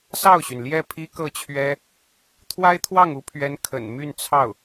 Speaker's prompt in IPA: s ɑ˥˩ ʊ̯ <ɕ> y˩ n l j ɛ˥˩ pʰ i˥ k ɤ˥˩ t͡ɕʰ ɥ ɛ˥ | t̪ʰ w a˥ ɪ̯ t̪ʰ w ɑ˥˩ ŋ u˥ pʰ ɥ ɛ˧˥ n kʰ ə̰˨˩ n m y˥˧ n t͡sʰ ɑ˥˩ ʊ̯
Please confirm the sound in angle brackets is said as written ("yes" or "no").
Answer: yes